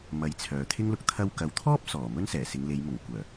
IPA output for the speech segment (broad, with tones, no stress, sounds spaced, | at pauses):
m ɐ˨˥ j t͡sʰ œː˨ t̪ʰ ɪ˥ ŋ l ʊ˨ k̚ t̪ʰ ɐ˧ w k ɐ˨ w t̪ʰ ɔː˥ p̚ s ɔː˨˩ m ɵ˥ n s ɛː˨˩ s ɪ˨˧ ŋ l e˨˧ j m ʊ˨˩ ŋ kʷ œː˨˩